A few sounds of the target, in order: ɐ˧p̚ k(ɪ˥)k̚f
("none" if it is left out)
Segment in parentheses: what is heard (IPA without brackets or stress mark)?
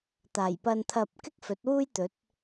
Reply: ɪ˥